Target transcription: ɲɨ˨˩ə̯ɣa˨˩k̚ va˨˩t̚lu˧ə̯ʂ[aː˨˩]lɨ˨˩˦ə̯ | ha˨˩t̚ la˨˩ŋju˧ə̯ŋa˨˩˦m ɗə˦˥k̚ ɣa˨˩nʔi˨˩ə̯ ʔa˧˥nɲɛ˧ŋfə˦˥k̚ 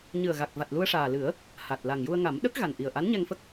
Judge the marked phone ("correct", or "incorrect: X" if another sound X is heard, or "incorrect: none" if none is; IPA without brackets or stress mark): correct